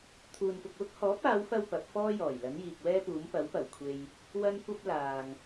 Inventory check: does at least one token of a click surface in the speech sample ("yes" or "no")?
no